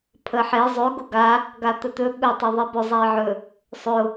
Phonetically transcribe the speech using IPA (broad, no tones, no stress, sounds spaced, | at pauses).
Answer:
pʰ ə ħ e zˤ ɵ ɡ ʊ ɡ a | ɡ a t̪ ə t̪ ɵ ɠ ɵ tˤ e ðˤ e b ʊ zˤ a ɪ̯ ʕ ɵ | sˤ ʊ